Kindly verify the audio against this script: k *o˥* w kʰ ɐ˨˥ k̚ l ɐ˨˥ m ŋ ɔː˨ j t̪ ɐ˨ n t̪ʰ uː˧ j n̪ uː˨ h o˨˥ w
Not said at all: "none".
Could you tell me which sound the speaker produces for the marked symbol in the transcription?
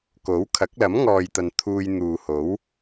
o˨˥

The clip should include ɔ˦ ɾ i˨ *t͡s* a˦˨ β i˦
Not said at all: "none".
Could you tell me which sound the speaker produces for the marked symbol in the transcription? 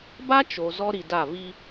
d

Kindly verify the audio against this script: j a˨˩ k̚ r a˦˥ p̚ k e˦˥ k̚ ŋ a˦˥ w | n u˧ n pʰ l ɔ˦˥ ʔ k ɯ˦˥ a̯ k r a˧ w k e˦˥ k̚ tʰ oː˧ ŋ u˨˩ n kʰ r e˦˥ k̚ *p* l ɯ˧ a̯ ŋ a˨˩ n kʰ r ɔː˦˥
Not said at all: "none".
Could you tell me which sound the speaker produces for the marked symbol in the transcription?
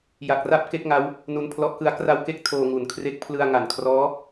pʰ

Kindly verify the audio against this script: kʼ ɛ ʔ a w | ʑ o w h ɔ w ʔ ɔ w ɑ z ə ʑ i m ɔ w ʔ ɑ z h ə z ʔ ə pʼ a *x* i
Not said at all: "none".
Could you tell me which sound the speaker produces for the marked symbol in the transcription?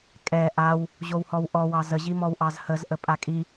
kʼ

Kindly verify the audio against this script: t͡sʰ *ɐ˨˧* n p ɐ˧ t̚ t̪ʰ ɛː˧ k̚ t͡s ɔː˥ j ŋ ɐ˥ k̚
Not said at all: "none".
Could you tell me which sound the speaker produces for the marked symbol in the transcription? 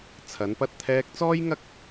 ɐ˨˧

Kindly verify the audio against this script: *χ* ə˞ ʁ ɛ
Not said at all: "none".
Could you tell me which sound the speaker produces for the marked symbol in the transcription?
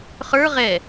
χ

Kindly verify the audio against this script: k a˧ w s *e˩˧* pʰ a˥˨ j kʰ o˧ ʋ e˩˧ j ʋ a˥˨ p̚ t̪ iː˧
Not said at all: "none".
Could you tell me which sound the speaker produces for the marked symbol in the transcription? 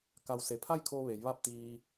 e˩˧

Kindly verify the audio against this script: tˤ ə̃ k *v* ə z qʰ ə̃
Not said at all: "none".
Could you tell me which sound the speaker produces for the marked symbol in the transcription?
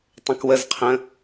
w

